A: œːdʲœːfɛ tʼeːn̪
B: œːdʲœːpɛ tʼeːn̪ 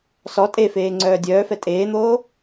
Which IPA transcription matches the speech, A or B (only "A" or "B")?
A